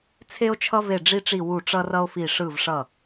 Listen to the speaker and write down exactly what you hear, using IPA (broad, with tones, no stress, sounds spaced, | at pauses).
t͡sʰ e˧ o̯ t͡ʃʰ ʌ˧ v e˧˩ ɖ͡ʐ i˧ ʈ͡ʂ i˧˩ w u˧˩ ʈ͡ʂ ʌ˧ r ʌ˧ o̯ f i˧˩ ʂ ɯ˧˩ v ʂ ʌ˧˩